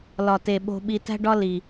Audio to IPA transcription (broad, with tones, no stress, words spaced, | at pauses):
lɒ˨te˨ɓo̤˧ɓi˧ tæ̤˦ɖɒ˦ li˨